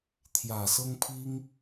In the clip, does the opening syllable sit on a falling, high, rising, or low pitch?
low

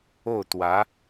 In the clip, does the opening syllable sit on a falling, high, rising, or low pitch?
falling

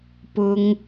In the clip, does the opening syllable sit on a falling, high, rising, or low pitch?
high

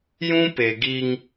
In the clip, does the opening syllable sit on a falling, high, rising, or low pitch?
high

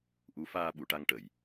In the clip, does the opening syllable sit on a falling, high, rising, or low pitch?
rising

